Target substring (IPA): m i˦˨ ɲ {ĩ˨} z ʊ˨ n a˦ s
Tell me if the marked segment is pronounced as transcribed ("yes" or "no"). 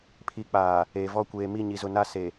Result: no